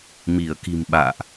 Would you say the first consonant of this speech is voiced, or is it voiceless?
voiced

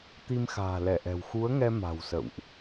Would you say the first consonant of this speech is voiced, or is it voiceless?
voiceless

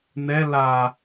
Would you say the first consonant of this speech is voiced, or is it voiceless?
voiced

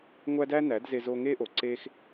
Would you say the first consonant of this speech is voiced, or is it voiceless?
voiced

